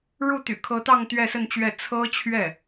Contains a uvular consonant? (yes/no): no